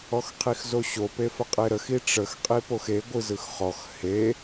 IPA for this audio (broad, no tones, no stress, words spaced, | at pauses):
ɔxqʰixzoɕo pefəqʼeɾəx iʈ͡ʂəx qʼipoxe ɡʷɯzɯxχɔx he